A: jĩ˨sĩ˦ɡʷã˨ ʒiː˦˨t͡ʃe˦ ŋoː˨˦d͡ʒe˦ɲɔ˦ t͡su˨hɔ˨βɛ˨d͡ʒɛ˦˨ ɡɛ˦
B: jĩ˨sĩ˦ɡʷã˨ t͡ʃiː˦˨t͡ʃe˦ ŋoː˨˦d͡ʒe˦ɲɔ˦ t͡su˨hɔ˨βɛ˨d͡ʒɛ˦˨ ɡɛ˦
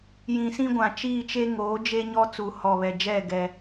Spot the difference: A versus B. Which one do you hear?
B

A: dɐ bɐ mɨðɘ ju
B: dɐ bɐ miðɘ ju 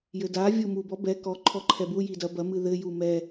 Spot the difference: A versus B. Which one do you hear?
A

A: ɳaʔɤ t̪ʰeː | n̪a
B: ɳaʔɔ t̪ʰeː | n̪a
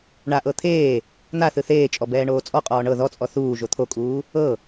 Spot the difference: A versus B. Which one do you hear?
A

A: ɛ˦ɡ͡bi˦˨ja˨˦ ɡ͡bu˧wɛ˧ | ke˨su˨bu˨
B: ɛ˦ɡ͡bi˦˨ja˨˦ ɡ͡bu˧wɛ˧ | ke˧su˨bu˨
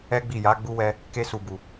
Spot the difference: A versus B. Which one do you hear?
B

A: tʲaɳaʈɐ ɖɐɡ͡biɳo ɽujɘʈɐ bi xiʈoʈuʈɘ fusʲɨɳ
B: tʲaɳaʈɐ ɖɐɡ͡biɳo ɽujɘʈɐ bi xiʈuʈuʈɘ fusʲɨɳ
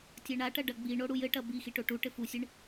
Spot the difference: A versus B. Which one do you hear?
A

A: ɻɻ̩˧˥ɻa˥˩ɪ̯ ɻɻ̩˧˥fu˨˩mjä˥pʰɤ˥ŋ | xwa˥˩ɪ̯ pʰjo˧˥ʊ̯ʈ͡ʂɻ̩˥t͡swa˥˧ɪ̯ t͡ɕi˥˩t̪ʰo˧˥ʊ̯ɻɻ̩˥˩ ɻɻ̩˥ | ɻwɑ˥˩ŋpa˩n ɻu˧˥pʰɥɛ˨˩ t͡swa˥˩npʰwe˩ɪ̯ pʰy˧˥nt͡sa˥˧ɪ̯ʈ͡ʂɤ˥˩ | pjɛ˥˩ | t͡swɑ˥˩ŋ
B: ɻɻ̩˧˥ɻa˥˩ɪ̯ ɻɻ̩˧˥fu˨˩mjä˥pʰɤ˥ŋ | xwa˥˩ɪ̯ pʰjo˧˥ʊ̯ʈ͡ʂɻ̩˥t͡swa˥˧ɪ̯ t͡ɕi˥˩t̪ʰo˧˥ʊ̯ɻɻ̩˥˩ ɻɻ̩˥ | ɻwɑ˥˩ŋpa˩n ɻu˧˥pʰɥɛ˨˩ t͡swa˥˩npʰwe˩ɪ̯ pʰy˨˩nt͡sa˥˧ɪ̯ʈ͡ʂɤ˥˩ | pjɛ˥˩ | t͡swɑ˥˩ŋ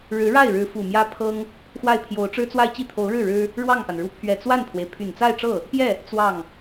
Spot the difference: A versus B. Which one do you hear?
B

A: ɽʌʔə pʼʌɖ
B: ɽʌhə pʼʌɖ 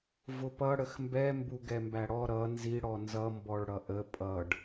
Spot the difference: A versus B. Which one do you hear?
A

